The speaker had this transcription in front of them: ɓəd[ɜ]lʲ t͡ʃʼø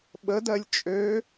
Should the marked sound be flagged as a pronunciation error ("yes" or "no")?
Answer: no